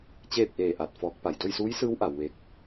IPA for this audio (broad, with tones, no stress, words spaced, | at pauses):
t͡ɕeː˥˨p̚ʔeː˧˩ʔa˧˩t̚ fɔː˧˥k̚pa˧˩j do˥˨jsuː˧˥jsɯː˧˥w ʔa˩˧wʋe˧˥k̚